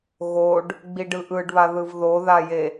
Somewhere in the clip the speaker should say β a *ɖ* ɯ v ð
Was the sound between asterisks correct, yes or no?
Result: no